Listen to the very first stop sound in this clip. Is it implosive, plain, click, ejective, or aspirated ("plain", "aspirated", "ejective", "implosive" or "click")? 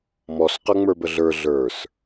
plain